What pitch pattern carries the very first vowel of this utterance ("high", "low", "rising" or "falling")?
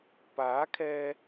rising